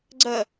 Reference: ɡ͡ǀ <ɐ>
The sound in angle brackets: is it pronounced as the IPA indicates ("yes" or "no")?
yes